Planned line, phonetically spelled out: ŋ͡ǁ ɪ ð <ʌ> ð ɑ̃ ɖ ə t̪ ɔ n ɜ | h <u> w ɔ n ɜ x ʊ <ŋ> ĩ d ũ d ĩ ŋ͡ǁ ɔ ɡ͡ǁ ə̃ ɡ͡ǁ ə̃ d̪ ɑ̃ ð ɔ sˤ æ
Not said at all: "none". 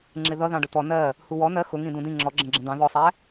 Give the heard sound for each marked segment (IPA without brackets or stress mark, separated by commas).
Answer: ʌ, u, ŋ